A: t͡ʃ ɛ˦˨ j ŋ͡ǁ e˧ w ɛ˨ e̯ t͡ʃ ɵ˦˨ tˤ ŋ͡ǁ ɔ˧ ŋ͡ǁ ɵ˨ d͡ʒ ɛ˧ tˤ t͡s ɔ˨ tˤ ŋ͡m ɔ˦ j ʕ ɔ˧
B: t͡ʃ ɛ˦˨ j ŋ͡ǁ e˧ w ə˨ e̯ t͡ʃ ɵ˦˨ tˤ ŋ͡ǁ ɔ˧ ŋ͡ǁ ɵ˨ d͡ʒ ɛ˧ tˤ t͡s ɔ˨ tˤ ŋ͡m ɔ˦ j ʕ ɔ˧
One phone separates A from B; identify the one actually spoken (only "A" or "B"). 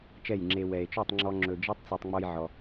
A